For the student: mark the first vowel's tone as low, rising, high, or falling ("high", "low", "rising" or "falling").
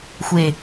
low